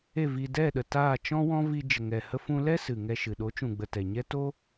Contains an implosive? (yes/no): yes